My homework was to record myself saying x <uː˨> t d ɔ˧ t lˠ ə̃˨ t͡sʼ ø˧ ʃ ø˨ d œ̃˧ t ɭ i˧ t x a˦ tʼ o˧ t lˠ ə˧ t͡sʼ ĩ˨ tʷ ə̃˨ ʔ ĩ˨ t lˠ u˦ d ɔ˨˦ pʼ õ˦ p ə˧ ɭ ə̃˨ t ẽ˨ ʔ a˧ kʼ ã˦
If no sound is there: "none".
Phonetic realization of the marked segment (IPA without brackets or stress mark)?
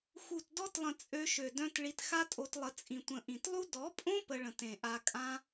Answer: u˨